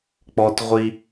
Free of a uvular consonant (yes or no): no